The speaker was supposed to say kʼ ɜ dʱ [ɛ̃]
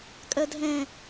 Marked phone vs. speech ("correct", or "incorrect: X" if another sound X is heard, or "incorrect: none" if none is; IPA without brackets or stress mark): correct